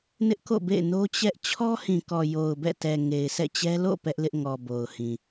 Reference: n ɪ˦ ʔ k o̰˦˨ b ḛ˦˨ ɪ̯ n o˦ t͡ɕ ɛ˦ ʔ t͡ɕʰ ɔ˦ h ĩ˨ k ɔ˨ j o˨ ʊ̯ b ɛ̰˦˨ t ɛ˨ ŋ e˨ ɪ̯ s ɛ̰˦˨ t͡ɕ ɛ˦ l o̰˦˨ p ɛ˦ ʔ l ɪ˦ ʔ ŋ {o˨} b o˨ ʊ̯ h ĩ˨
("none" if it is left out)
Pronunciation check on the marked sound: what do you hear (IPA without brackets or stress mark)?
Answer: ɔ˨